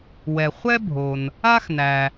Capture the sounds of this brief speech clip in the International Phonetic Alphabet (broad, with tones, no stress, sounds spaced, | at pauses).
w ɛ˩ χʷ ɛ˥ bʱ o˩ n | a˥ x n æ˩